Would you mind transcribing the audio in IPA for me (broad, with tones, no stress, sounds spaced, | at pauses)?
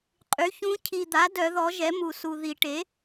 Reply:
qʼ y˩˥ ç ũ˧˥ cʰ i˨ d̪ a˩˥ d œ˨˩˦ ð ɔ˩˥ ʒ ɛ˩˥ m u˨ s u˨ ð i˨˩˦ ʈ e˩˥